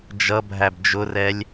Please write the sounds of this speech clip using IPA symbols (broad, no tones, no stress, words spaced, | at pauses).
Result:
d͡ʒʌbʱæb d͡ʒʊrɛlʲ